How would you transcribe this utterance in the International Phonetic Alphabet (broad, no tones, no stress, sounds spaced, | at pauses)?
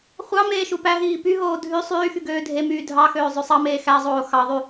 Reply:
χʷ ɑ m eː ʃ u p æ ɦ iː p y ɦ oː dʱ y sˤ yː x y ɡ øː dʱ e m yː dʱ ɑ x øː zˤ ø sˤ ɑ m eː x æ zˤ oː x ɑ ðˤ y